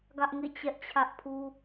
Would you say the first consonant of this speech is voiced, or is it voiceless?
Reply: voiced